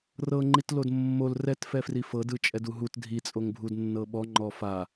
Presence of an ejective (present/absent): present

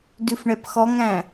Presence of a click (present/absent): absent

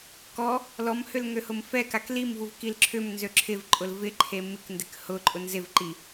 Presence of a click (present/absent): present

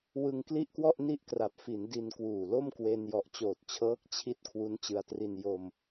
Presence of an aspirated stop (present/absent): present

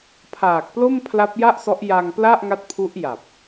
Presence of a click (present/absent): absent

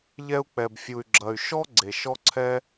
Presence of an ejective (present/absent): absent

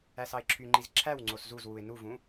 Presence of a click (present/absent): present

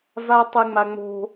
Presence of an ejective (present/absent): absent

